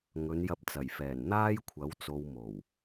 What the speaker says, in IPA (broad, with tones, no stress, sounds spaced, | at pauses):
ŋ ɵ˨˧ n j ɐ˧ p̚ t͡s ɐ˨˩ j f ɛː˨˩ n n̪ aː˥ j kʷʰ ɐ˨˥ w t͡s o˧ w m o˨˩ w